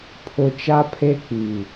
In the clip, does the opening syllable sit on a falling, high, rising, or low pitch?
low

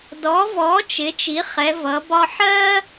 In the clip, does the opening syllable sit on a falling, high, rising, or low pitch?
rising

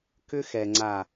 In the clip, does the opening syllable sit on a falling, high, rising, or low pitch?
high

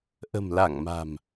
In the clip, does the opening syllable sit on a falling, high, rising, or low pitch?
low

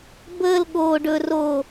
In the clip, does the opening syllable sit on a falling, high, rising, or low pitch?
high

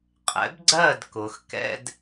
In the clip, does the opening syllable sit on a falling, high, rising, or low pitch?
rising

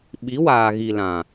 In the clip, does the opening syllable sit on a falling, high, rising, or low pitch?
rising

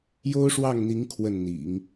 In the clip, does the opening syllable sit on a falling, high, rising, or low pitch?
high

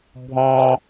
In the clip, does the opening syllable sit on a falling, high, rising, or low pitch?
high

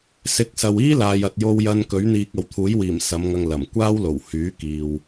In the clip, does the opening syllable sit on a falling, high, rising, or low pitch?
rising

